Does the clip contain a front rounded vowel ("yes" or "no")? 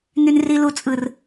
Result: yes